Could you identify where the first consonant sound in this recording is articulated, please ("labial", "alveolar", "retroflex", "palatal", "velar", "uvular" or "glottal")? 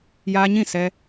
palatal